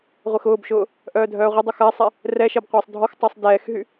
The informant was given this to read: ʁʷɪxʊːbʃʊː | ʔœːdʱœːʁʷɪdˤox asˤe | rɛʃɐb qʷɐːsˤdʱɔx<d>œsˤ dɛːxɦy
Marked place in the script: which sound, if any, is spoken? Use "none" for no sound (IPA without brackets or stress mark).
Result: tˤ